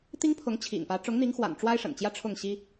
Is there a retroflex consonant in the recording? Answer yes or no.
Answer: yes